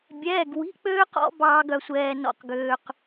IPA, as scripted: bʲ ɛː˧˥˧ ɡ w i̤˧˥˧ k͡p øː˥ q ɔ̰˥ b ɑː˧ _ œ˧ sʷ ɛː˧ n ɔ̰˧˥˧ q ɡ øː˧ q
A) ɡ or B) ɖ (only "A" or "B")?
A